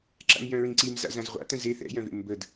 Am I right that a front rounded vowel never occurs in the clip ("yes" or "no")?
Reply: no